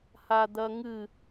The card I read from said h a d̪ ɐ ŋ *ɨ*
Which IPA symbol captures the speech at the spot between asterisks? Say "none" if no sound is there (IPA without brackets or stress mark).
ɨ